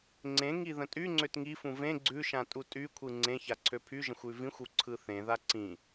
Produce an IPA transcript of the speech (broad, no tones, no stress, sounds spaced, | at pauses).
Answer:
ŋ͡ǀ ẽ ŋ i ð ə̃ tʼ y ŋ͡ǀ ø t ŋ i f ũ v ẽ ɡ͡ǀ ʉ ʃ ã tʼ u tʼ y kʷʰ ɯ ŋ͡ǀ ẽ ç a ǀʰ ø pʰ y ʒ ə̃ xʷ ʉ v ĩ xʷ u ǀʰ ɯ θ ẽ ð a ǀ ĩ